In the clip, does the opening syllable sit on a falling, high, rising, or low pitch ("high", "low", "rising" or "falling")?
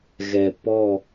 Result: low